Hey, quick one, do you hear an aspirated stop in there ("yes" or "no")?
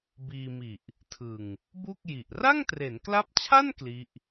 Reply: yes